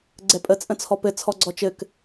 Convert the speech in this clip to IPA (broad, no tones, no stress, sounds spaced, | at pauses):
ɡ͡ǀ ɛ pʼ ə t͡sʼ ə̃ t͡sʰ ɔ p ɘ t͡sʰ ɔ ɡ͡ǀ ɔ t͡ʃ ɘ k